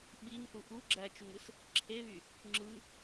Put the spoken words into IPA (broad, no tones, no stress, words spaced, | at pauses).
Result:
ɓiŋθu ʔu ɡ͡ǁæt͡ʃuŋɯs | ǁʰeβy | ŋ͡ǁɯ